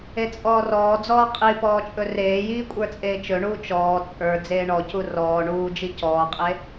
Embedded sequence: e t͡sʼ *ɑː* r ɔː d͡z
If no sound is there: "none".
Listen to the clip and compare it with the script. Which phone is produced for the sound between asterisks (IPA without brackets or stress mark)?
ɔː